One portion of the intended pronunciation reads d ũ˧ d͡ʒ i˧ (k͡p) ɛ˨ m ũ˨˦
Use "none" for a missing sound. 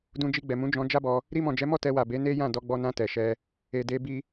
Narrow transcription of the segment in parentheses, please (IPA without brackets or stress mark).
ɡ͡b